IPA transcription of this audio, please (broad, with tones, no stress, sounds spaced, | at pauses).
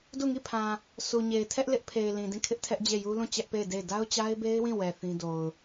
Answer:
d u˦˨ ŋ i˦˨ pʰ ã˨ | sʰ u˨ ɲ e˨ ɪ̯ tʰ ɛ˦ ʔ l ɪ˦ ʔ pʰ e˨ ɪ̯ l ĩ˨ d ĩ˦˨ kʰ ɪ˦ ʔ tʰ ɛ˦ ʔ d͡ʑ e˦˨ j u˦ l ũ˦˨ t͡ɕ ɛ˦ ʔ p e˦˨ ɪ̯ d e˦˨ ɪ̯ d a˦ ʊ̯ t͡ɕ a˦ ɪ̯ b e˦ ɪ̯ w ĩ˦˨ w ɛ˨ θ ĩ˦ d o˨ ʊ̯